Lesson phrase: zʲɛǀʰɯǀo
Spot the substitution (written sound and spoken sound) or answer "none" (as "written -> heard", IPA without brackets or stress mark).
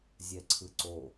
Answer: none